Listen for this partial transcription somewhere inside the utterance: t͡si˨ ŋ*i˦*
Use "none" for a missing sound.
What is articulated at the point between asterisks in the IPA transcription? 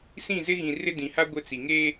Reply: e˦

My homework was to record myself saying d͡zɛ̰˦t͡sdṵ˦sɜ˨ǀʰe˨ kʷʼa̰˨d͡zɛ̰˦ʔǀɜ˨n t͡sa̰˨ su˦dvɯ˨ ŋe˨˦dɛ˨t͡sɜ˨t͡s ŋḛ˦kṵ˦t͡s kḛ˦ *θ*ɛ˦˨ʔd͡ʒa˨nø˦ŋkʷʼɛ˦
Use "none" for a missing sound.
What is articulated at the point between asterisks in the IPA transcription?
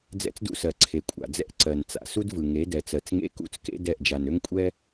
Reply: d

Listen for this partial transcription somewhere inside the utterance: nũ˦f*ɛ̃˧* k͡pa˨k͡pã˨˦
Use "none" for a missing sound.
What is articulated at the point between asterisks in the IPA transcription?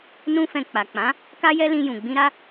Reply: ɛ̃˧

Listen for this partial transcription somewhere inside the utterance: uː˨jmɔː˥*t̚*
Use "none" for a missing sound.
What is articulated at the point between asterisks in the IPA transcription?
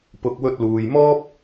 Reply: p̚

